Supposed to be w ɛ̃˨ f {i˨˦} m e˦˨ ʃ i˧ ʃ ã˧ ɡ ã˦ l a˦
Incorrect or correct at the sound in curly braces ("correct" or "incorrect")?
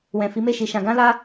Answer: correct